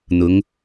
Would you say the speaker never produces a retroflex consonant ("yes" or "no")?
yes